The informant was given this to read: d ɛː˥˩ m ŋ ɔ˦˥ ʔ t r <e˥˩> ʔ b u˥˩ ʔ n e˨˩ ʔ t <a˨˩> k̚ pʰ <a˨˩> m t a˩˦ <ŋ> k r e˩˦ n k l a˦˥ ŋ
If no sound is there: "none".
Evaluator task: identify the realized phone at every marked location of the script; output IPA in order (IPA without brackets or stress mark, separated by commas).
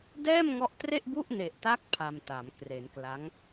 e˥˩, a˦˥, a˧, m